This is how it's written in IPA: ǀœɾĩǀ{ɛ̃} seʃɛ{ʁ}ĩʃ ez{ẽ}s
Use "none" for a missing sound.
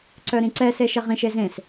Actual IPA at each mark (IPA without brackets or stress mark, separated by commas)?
ɛ, ʁ, ẽ